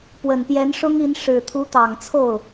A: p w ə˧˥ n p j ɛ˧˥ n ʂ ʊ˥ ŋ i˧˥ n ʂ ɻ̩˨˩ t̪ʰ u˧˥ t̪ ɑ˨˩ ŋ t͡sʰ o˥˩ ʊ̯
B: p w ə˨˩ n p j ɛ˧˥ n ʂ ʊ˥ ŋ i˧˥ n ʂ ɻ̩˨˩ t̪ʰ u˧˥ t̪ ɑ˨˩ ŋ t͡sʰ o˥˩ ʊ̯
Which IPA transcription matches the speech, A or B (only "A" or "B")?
B